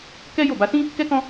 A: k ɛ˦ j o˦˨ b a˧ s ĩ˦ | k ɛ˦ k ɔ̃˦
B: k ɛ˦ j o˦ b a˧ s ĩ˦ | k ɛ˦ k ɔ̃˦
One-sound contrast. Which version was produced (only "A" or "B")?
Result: A